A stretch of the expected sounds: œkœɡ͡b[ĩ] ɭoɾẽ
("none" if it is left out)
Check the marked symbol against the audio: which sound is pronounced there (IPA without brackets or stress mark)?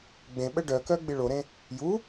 i